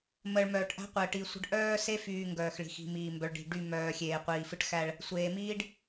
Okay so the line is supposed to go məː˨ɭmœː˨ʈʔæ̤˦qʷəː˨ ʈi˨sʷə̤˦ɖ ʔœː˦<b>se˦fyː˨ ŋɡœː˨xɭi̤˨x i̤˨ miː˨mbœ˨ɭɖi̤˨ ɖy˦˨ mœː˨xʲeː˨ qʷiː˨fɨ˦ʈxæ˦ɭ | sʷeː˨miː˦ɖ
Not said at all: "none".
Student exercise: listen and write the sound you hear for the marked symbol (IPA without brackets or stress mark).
none